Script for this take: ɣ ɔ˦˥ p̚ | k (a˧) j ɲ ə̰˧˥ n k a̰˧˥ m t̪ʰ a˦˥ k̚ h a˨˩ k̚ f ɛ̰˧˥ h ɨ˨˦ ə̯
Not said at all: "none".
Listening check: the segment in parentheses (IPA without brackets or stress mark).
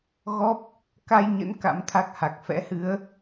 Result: a˧